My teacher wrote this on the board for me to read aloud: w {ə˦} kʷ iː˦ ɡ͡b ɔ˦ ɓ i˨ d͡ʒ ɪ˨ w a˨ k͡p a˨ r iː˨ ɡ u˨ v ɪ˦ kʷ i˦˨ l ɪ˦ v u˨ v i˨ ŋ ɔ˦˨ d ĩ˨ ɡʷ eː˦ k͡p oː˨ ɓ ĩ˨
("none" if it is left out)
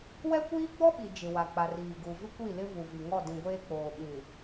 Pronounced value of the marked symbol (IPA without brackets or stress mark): ɛ˦